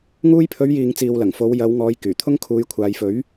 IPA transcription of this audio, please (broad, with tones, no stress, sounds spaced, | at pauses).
ŋ uː˧ j pʰ ɵ˨˧ ɥ j iː˨ ŋ t͡s iː˨ w l ɐ˨˩ ŋ f o˨˧ w j ɐ˨˧ w ŋ ɔː˨˧ j k yː˨˩ t̪ʰ ʊ˥ ŋ kʰ uː˨˧ j kʷʰ aː˨ j f ɵ˨˥ ɥ